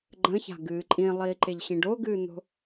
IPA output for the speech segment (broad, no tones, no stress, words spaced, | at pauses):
ɡ͡ǃə̃ça̤ɡɨː ǃʼĩlˠiːǃeʎɕĩɖ oɡɨːn̪o̤